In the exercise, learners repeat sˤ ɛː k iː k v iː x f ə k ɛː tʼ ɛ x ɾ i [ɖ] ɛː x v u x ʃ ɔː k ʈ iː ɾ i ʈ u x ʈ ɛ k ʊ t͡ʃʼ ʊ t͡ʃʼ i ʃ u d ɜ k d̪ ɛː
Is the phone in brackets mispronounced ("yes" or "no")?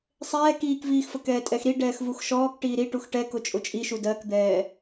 no